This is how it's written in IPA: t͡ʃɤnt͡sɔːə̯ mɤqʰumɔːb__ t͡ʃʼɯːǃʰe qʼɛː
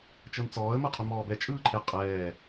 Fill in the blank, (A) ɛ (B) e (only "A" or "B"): A